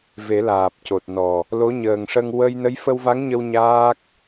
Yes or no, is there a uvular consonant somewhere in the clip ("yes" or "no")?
no